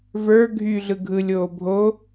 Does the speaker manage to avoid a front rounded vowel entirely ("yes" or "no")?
no